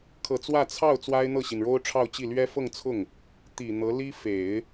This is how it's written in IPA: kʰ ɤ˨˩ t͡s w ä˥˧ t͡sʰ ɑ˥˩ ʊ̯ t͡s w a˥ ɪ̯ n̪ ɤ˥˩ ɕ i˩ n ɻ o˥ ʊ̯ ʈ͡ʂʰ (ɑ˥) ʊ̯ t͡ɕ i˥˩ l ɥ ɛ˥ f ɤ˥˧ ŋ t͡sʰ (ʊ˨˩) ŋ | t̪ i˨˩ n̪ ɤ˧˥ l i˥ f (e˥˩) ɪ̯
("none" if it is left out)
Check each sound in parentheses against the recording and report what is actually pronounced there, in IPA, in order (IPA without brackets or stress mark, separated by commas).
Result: ɑ˥˧, ʊ˥˩, e˨˩˦